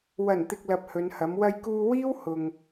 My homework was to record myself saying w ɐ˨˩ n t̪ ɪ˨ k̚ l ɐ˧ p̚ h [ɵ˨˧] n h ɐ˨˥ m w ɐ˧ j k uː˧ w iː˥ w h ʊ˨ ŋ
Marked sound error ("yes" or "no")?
no